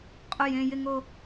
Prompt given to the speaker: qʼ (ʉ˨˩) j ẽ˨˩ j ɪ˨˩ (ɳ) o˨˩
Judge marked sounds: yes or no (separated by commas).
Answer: no, no